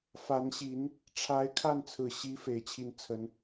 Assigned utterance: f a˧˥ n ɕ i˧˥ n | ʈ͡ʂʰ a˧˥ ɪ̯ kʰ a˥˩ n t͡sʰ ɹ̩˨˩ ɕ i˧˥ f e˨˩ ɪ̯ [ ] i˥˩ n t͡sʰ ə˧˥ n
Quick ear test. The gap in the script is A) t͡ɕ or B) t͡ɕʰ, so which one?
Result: B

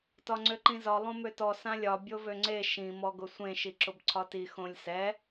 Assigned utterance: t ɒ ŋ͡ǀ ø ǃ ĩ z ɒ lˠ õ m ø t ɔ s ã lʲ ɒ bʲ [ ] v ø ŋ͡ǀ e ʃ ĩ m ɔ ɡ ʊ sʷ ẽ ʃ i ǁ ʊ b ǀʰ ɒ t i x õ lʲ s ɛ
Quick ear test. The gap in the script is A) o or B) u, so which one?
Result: A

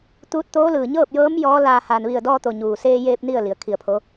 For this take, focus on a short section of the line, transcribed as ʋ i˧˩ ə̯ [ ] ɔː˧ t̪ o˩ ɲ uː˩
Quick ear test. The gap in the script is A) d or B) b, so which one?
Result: A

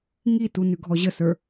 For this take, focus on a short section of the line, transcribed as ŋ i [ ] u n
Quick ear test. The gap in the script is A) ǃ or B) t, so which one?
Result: B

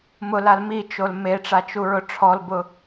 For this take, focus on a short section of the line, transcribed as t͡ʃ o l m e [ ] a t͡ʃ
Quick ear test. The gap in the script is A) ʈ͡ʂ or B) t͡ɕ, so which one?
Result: A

